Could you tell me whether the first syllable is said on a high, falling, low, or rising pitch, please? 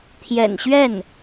low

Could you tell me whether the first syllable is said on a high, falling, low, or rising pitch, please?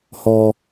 high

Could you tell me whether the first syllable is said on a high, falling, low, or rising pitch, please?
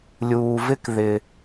low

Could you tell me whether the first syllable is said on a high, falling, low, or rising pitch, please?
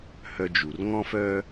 high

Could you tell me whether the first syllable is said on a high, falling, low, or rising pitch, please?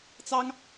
high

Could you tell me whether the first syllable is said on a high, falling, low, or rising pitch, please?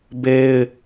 high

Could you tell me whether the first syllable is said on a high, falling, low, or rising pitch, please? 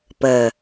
low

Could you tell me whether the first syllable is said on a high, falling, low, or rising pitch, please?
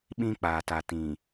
high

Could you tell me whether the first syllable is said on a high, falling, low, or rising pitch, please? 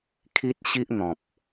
high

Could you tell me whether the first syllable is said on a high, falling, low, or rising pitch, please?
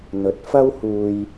rising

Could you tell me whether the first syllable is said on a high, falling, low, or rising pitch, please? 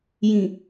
low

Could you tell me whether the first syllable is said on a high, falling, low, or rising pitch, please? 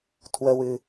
low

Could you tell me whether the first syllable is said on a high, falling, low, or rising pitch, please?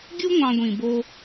high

